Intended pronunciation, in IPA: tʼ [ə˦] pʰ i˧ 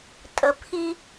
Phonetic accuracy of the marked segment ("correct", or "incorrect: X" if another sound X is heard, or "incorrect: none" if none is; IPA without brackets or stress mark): incorrect: ə˨